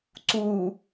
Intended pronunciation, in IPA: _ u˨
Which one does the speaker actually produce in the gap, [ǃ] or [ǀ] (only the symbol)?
ǀ